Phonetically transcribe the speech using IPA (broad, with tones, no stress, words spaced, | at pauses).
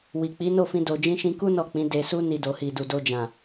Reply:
wi˨k͡pi˨˦no˦˨fĩ˧ do˨d͡ʒĩ˧ʃĩ˧ku˦ nɔ˦˨k͡pĩ˨˦ de˧su˦ ni˧do˨hi˨du˨ do˧d͡ʒã˨